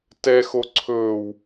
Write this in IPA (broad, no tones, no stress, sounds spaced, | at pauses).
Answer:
t ɛ x o ǀʰ ɵː w